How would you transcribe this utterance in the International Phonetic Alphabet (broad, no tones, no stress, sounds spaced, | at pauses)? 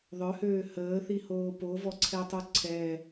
ðˤ œ h øː h əː θ i h oː p o v ɔ ǀʰ ɛ tˤ u ǀʰ ɛ